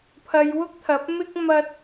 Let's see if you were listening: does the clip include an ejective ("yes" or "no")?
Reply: no